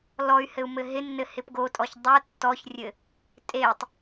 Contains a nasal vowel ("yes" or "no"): no